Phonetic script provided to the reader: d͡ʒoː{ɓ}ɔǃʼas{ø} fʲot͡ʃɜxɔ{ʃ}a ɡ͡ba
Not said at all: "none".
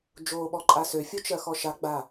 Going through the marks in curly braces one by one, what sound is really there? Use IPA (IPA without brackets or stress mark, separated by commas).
ɓ, ø, ʃ